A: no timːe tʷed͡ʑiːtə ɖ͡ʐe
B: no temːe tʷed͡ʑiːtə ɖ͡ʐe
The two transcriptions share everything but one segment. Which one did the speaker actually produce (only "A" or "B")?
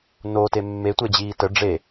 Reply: B